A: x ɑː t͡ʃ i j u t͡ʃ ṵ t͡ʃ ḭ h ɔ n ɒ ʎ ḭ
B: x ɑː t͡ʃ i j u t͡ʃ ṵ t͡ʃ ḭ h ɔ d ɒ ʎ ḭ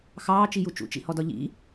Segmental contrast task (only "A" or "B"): B